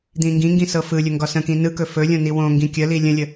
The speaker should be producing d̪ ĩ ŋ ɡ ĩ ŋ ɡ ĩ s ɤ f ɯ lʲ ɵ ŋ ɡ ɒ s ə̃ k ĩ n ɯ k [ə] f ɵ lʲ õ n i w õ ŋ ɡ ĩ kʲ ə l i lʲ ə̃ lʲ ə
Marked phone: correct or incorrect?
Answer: incorrect